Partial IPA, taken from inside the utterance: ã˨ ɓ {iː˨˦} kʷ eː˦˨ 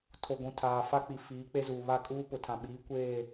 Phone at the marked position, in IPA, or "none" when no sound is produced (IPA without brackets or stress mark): iː˨˦